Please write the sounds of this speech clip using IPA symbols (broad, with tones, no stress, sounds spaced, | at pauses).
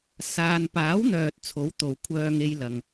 s aː˨ n p aː˨˥ w n̪ œː˨ t̚ t͡sʰ o˨˥ w t̪ o˨ w kʷʰ œː˧ ŋ e˧ j l ɐ˨ ŋ